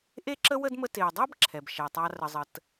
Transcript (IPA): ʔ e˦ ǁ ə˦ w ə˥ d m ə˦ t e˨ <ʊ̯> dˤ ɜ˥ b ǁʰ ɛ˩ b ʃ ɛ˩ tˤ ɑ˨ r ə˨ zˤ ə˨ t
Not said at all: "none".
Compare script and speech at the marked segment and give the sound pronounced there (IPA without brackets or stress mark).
ʊ̯